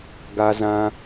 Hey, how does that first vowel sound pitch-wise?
high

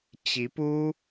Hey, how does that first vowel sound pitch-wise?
rising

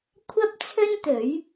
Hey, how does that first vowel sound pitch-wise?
high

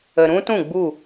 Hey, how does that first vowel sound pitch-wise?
low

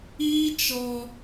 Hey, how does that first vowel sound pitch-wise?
high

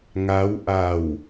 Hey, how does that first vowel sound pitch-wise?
rising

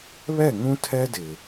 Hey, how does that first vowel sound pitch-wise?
falling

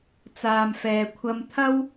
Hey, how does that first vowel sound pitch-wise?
low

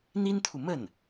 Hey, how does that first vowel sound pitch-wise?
high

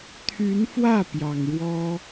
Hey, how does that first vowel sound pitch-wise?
rising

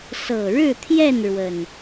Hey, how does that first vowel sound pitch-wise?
low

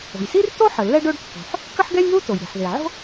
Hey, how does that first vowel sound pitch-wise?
low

